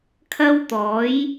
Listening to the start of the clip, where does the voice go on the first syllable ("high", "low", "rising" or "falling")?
high